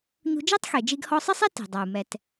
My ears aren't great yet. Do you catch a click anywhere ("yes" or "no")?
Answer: no